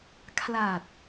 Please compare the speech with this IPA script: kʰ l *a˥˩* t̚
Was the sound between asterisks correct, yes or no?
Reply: no